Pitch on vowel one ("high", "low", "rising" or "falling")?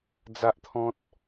high